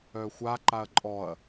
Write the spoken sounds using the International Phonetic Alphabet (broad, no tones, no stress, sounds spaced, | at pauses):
œ xʷ a ǃ a ɐ̯ ǃʼ ɔ ɐ̯